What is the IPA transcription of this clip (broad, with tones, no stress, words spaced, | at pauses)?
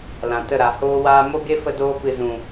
lã˨tə˦˨ɾa˨ hoː˧waː˧mo˦ ɡe˦fə˧doː˧pɨ˨ zũ˨